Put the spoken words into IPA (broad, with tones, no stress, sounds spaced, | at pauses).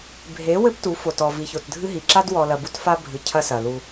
bʱ e˨˦ w ɘ˦ p t u˨˦ f o˨ t ɔ˨ v i˨ ç o˨ t dʱ ɨ˦ ɦ i˨ ǁ a˦ d w ɔ˨ l ɐ˨ b u˦ t f a˦ bʱ ɨ˨ cʰ ɐ˦ s ɐ˨ l u˦